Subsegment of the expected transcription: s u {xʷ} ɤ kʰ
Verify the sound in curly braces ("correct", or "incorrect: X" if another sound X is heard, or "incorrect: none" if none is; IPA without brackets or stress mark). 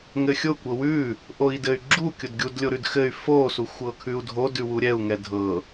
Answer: correct